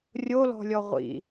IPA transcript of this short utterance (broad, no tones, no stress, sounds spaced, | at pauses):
rʲ o l ɔ̤ lʲ ɔ ʁʷ ḭ